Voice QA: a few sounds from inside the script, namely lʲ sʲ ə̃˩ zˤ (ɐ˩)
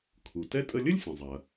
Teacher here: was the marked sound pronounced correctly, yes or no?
yes